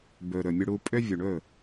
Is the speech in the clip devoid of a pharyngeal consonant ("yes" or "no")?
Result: yes